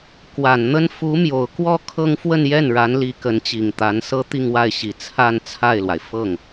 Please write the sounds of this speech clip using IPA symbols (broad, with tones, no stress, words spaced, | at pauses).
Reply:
kwa˨˩nn̪ə˥n fu˧˥mjo˨˩ʊ̯kwɔ˥˧ kʰɤ˥˧ŋ fwə˥˧njɛ˥˩n ɻa˧˥nli˧˥ kə˧˥nt͡ɕi˨˩ŋ t̪a˧˥nsɤ˥ t̪i˥˧ŋwa˥˩ɪ̯ɕi˨˩ t͡sʰa˥˧n t͡sʰa˥˩ɪ̯lwa˩ɪ̯ fɤ˥˩ŋ